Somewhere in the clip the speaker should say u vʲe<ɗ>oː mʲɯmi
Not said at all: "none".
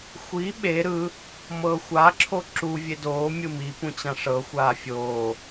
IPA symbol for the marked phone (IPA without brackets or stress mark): d